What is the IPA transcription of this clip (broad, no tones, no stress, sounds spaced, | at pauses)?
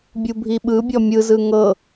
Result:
bʲ u bʱ i ɓ ɯ bʲ ɔ mʲ ɯ z ɯ ŋ ɤ